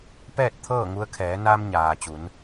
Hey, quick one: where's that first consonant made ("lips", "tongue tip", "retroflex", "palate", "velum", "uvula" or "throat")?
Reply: lips